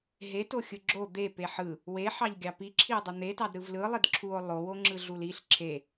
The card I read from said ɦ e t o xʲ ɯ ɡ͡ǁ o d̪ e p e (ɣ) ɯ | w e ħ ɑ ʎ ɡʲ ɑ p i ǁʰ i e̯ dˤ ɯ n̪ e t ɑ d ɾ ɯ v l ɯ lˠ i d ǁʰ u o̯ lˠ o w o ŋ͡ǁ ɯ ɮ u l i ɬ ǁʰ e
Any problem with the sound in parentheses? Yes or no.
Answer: yes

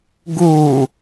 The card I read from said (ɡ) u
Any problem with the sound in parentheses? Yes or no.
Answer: no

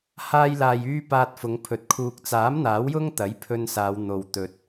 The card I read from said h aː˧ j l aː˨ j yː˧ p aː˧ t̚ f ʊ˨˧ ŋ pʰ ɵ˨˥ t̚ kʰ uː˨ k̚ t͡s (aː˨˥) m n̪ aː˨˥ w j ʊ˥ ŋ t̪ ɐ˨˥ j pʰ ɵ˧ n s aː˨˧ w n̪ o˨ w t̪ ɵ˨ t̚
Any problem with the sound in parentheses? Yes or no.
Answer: no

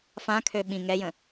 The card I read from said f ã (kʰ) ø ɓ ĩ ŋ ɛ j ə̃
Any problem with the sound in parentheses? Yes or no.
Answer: no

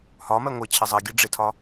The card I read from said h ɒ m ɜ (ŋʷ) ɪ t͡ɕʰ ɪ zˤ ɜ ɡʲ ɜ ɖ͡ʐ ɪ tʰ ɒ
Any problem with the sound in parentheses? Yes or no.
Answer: no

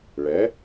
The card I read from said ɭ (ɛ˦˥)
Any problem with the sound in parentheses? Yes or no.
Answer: yes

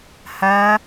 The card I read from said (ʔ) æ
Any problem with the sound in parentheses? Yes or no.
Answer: yes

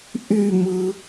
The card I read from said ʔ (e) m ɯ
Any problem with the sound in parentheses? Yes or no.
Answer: yes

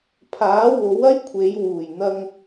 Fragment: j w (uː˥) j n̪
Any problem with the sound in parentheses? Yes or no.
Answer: yes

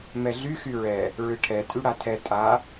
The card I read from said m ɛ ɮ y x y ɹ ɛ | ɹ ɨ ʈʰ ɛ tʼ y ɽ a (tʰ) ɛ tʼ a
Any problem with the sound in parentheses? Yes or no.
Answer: no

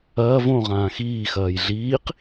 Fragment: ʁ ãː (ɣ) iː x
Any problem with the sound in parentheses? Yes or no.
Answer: yes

